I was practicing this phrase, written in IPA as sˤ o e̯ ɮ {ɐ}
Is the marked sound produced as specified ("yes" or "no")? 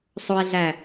no